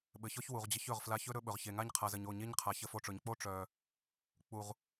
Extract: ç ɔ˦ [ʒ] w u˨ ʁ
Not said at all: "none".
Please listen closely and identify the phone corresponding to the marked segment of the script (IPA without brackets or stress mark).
ç